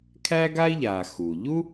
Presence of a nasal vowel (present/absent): absent